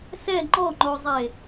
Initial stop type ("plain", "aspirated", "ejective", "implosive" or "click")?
click